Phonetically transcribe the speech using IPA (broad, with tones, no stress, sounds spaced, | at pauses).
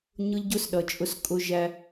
ɲ ʊ˦ ʎ ɟ ʊ˦ s ɗ ʌ˨ t͡ʃʼ ʊ˦ s kʼ ʊ˧ ʒ æ˧